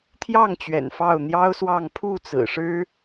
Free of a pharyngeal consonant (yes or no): yes